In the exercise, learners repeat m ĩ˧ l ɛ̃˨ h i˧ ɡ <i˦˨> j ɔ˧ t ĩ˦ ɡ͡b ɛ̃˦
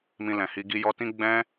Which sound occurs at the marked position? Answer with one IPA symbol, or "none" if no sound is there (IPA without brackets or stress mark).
i˧